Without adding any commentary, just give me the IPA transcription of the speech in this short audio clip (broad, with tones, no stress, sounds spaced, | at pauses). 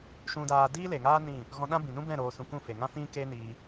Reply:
ʃ ũ˦ d aː˦ d iː˦ l e˨ ŋ aː˦ n ĩ˦˨ | ɣ ɔ̃˧ ɗ ã˦ b ĩ˨ n ũ˦ b ɛ̃˦˨ ɾ oː˧ s ũ˧ k ũ˦˨ f e˨ ŋ ã˦ f ĩ˦ k e˦ n iː˧